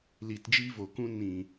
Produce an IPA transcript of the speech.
l iː˨ t d͡ʒ iː˧ v oː˨ k ũ˧ n ĩ˨

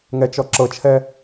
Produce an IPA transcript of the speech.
ŋ ɛ t͡ʃ ɔ ǁ ɤ t͡ʃʰ ɛ

